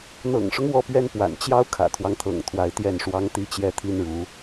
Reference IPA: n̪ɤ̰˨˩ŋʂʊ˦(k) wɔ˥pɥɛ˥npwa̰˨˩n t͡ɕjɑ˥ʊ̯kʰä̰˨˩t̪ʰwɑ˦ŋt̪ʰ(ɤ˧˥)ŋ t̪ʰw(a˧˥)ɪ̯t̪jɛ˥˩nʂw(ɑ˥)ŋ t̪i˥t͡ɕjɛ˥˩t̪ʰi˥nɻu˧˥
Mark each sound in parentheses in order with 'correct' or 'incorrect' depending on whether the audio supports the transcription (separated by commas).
incorrect, incorrect, correct, correct